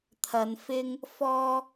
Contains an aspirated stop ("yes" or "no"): yes